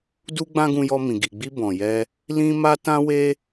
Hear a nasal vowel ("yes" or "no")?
yes